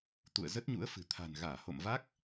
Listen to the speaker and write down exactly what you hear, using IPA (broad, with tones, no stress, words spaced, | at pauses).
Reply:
t̪ṵ˧˨ə̯zə˦˥t̚ɲṵ˧˥ə̯fɨ̤˨˩ t̪ʰa̤˨˩nɣaː˧˩ho̰˧˨mva˦˥k̚